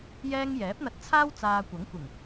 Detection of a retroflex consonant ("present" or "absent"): absent